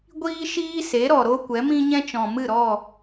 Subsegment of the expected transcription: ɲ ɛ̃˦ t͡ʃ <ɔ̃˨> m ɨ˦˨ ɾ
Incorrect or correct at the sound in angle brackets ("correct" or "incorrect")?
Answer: correct